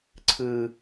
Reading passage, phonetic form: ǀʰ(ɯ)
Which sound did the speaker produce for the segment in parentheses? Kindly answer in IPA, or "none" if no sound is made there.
ɯ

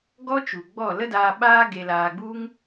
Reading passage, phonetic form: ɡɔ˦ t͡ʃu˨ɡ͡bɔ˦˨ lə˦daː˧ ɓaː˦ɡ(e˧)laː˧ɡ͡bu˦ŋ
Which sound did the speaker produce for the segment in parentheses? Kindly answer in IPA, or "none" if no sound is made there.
e˧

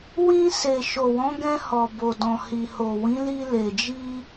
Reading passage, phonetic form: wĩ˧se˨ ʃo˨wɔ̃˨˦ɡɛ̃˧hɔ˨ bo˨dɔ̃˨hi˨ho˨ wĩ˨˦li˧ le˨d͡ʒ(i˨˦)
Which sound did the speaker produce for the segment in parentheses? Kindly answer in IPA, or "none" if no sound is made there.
i˧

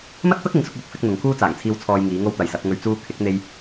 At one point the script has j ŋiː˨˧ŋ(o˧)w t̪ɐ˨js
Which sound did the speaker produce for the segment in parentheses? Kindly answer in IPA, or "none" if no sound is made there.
o˧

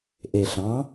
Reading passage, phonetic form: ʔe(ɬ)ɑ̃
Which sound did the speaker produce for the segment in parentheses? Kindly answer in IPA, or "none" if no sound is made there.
ɬ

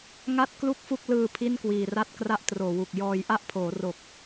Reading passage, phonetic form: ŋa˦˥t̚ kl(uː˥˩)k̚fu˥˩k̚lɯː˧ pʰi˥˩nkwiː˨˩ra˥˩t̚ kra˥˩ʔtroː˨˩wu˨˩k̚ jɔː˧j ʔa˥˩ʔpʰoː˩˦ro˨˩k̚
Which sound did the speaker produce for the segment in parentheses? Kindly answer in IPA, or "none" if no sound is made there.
u˥˩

